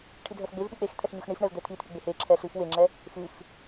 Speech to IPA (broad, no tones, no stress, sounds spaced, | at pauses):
ʈʰ i dʱ œ f ɡ͡b e v ɓ i k͡p e x t̪ʰ ɛ x ɲ ʉ x ɳ i f ɳ ɛ v d̪ ɛ t̪ʰ i t̪ʰ ʉ ɡ͡b e h e ǁʰ ɛ ɬ ʉ f w e ŋ͡ǁ ɛ | f ʉ f